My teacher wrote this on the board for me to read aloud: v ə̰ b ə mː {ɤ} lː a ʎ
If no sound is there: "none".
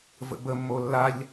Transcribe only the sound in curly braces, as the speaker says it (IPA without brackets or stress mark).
o